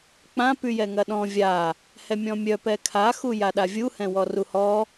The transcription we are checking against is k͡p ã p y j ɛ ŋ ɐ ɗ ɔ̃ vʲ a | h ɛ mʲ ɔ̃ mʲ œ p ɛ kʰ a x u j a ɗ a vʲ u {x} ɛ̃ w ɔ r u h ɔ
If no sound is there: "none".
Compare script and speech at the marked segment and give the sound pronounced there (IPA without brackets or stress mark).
h